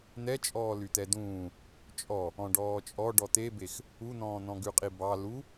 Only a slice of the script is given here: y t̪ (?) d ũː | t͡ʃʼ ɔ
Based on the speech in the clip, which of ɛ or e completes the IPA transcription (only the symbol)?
ɛ